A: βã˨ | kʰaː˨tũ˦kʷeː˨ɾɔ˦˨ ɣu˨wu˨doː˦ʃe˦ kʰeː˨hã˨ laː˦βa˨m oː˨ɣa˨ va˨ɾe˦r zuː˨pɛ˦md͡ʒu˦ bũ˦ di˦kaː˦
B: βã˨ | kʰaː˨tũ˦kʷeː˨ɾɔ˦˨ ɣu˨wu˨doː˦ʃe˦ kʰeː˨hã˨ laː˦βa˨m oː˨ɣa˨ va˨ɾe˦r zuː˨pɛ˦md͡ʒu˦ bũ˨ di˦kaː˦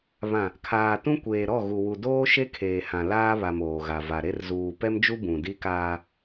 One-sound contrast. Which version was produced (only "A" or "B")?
B